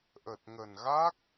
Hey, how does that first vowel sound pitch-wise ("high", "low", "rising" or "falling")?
low